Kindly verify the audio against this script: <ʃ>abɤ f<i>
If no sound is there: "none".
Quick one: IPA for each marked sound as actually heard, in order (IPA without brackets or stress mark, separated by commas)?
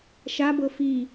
ʃ, i